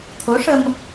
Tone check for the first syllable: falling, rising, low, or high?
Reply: rising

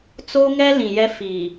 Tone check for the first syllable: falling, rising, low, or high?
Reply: high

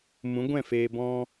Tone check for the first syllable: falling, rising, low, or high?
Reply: rising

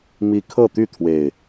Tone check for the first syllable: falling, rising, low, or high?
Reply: high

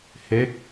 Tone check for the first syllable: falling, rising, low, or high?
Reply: falling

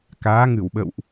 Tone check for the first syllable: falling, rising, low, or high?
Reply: rising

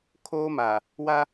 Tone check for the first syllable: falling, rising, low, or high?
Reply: high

